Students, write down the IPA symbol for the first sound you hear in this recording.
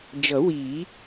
d͡ʒ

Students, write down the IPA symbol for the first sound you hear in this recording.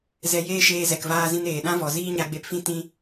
z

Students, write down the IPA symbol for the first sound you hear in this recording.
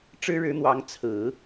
ʈ͡ʂ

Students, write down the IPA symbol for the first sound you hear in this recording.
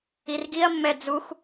i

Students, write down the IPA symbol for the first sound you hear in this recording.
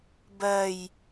b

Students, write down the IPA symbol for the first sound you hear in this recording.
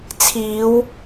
t͡sʰ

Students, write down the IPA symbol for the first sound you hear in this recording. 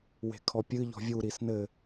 w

